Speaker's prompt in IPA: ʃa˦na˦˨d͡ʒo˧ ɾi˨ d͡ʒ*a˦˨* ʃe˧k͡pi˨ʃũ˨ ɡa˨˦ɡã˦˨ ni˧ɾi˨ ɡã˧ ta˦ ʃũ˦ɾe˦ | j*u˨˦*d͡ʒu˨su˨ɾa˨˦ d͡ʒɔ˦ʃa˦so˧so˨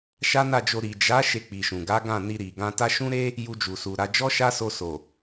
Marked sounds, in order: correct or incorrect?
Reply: incorrect, incorrect

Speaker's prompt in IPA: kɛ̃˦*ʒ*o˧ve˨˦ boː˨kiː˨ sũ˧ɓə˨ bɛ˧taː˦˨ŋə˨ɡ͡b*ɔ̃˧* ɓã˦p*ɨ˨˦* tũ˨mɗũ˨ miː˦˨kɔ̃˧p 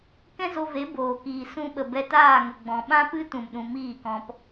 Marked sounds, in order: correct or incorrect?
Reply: incorrect, incorrect, incorrect

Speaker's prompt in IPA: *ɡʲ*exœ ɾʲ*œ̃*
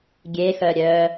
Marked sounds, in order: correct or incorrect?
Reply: correct, incorrect

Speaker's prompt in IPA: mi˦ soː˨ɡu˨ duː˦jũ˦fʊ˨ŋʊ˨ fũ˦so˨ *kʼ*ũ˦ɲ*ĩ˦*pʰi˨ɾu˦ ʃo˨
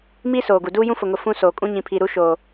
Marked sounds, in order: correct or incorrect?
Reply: correct, incorrect

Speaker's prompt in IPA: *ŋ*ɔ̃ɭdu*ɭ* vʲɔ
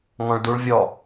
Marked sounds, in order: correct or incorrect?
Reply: correct, correct

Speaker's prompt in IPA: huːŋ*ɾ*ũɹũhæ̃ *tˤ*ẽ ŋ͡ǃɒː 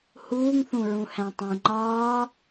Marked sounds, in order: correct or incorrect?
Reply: incorrect, correct

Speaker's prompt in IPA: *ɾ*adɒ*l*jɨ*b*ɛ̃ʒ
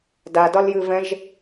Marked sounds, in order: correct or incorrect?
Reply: incorrect, correct, incorrect

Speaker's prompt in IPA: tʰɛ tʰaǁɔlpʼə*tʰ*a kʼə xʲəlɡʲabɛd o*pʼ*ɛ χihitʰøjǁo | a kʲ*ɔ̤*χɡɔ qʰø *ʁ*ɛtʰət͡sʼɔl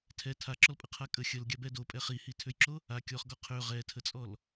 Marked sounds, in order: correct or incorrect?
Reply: incorrect, correct, incorrect, correct

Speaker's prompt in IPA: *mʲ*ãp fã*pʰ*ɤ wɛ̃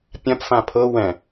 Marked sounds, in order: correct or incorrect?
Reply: incorrect, correct

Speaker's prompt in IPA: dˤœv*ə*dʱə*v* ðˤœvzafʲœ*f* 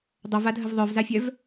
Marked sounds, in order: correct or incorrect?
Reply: incorrect, correct, incorrect

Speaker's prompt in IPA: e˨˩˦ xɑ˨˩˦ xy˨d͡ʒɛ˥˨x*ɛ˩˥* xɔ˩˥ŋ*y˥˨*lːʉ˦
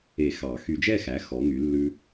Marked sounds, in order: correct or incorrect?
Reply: incorrect, incorrect

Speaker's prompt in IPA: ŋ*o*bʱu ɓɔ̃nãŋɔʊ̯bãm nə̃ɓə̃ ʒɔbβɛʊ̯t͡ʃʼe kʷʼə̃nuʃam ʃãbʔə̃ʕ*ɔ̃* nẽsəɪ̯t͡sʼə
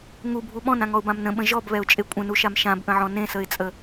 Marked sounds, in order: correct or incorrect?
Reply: incorrect, correct

